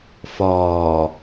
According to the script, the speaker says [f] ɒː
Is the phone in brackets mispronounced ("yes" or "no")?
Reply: no